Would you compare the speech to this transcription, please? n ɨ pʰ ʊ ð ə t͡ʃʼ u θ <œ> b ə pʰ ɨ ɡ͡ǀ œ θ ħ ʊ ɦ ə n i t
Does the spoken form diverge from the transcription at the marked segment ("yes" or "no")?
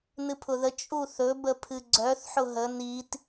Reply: yes